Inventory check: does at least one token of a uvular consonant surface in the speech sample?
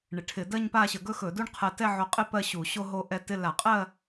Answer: yes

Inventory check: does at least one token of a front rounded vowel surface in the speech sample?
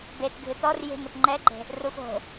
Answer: no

